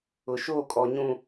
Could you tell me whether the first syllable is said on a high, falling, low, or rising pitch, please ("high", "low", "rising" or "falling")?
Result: low